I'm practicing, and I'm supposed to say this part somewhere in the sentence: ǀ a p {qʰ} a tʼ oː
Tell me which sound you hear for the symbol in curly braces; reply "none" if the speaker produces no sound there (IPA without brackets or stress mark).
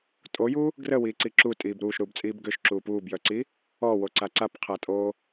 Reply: qʰ